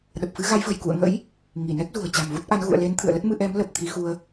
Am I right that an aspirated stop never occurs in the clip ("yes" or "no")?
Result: no